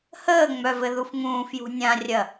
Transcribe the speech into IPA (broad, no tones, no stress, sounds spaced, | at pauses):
h əː ŋ͡m œ v ɘ ð u f ŋ ũː f j ṳ nʲ ã rʲ ɐ